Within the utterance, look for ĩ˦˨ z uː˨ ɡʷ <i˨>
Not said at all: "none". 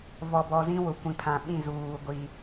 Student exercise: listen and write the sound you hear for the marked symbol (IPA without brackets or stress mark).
i˨